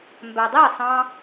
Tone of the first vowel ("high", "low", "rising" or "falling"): low